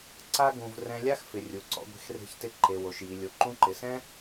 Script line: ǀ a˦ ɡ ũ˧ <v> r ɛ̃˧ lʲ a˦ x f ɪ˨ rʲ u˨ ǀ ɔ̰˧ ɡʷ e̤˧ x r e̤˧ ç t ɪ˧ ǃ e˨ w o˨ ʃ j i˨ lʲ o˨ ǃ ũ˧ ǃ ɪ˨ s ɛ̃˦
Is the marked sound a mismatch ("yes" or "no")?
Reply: no